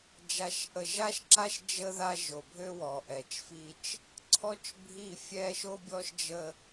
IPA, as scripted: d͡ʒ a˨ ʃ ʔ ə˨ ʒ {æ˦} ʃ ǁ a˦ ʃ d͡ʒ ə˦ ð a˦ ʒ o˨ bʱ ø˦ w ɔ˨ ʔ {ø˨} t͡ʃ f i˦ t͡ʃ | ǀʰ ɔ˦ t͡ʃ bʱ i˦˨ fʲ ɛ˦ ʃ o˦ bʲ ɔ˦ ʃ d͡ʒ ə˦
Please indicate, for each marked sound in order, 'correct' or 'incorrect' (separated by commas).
incorrect, incorrect